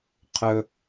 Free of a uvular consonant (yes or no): no